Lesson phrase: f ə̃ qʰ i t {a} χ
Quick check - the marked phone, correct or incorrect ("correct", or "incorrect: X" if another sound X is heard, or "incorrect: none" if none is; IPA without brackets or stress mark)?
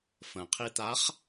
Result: correct